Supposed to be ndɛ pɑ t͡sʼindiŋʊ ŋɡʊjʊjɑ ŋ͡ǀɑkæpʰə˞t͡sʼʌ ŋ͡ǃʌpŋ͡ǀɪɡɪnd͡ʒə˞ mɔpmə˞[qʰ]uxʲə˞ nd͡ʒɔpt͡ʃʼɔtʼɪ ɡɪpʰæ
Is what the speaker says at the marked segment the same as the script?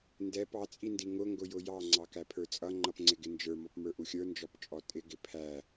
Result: no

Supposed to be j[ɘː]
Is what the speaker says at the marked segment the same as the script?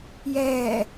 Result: no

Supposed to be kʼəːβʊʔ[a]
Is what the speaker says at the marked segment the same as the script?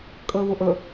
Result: no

